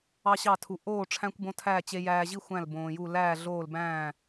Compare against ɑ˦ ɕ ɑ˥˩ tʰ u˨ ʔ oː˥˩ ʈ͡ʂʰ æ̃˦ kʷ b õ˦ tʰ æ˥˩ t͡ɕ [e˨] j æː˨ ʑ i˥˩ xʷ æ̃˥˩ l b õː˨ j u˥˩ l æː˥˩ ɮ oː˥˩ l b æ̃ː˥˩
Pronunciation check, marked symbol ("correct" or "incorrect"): correct